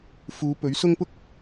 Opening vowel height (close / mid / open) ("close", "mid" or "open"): close